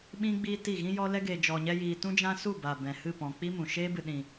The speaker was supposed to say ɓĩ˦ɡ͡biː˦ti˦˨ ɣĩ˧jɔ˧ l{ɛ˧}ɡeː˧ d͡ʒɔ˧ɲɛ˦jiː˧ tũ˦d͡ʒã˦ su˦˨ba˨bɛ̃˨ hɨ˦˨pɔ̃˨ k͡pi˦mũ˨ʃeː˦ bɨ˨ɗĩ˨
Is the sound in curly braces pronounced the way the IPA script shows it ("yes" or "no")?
no